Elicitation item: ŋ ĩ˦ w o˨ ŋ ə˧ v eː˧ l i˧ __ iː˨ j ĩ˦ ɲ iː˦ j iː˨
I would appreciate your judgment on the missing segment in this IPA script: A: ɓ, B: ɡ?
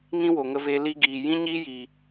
B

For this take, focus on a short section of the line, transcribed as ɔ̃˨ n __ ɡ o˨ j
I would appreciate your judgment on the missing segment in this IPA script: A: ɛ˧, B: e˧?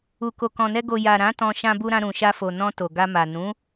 A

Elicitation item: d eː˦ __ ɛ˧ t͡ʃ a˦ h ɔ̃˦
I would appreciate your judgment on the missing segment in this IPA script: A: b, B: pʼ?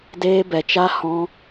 A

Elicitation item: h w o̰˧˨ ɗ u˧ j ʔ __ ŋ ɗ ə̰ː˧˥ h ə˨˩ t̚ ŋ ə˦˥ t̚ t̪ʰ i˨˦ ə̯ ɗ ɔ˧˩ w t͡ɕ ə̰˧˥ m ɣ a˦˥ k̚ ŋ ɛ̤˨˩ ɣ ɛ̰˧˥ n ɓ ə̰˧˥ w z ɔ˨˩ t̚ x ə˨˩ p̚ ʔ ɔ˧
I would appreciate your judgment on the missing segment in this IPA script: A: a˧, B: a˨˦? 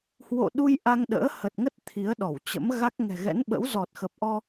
A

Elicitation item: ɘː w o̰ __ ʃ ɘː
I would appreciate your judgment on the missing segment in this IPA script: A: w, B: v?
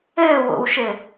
A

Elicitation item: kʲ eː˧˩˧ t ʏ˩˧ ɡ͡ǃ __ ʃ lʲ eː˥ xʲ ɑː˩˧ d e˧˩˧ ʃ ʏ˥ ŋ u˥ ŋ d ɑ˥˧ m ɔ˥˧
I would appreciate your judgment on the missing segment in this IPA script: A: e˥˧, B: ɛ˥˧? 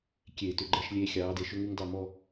B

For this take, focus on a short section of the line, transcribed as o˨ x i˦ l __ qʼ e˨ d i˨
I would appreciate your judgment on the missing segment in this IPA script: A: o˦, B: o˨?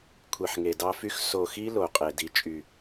B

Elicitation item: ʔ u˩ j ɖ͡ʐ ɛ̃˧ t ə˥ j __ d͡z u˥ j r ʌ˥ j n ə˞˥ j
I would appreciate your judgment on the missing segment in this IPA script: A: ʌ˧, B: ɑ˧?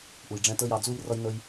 B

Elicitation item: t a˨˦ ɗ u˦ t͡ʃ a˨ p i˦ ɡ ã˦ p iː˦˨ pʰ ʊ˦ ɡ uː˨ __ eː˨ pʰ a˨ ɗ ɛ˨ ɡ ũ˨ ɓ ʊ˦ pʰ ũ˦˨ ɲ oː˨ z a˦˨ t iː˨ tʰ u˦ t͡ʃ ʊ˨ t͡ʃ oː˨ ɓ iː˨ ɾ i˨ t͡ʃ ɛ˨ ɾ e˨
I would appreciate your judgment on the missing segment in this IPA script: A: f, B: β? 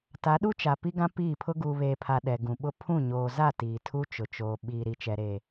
B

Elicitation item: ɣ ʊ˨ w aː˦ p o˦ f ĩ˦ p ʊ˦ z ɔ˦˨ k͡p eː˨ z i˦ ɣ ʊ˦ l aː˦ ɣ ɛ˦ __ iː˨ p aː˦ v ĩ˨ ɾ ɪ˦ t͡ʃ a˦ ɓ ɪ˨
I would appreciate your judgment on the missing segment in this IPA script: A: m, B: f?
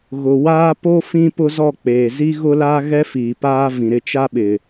B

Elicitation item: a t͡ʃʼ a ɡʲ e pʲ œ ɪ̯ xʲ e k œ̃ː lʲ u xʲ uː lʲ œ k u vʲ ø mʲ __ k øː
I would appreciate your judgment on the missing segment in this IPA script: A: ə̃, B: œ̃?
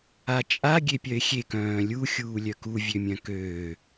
B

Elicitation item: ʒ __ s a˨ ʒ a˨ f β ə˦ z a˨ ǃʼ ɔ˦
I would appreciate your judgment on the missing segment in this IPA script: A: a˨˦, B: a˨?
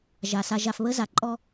B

